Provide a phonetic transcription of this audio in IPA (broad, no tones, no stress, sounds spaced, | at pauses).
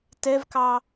t ɛ v k ɑ